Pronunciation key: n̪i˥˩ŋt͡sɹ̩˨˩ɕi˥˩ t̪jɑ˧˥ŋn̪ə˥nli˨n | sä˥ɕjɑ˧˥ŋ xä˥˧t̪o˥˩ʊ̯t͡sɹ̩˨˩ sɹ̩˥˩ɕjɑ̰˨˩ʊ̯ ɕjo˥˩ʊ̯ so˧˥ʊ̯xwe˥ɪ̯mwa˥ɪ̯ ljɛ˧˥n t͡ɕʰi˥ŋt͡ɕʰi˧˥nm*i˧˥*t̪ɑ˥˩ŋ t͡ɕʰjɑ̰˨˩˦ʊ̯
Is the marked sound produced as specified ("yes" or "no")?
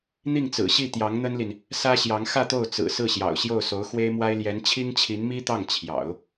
no